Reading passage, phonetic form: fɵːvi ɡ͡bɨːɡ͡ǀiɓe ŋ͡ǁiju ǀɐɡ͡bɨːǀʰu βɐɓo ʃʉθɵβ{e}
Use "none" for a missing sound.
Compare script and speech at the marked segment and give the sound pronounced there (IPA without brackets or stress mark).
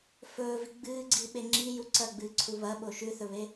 e